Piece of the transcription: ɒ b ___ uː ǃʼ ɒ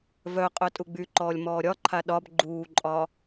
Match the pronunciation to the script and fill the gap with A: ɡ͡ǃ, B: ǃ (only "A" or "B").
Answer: A